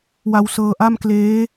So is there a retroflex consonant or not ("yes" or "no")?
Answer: no